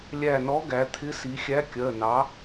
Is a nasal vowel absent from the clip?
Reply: yes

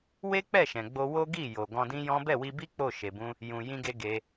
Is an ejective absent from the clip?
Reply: yes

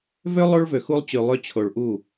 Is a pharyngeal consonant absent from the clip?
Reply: yes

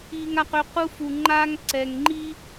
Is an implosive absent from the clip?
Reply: yes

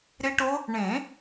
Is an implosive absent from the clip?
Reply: yes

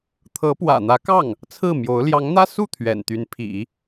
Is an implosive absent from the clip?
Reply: yes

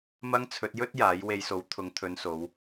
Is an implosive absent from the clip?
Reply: yes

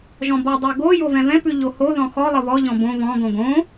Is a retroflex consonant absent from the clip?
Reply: yes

